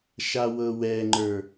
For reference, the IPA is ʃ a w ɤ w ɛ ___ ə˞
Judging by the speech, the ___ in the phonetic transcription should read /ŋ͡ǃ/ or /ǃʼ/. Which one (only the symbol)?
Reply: ŋ͡ǃ